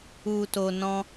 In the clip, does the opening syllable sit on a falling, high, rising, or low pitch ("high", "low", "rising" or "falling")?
low